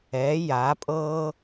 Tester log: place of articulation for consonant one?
palatal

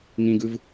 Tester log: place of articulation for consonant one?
velar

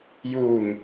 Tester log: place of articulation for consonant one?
palatal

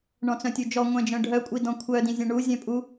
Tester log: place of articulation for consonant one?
retroflex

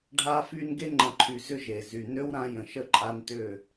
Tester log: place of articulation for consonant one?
retroflex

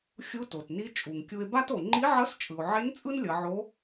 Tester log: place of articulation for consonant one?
velar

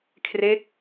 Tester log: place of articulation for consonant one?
velar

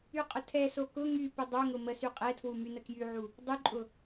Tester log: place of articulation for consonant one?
uvular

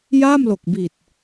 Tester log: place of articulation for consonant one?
palatal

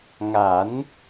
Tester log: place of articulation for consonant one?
velar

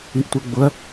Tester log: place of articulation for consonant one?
glottal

